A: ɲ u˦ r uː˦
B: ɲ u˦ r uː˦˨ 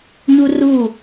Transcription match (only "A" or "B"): B